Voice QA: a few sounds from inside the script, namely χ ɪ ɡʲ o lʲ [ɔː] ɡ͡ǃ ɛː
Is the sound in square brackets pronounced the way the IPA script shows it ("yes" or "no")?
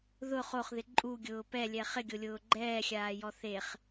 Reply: no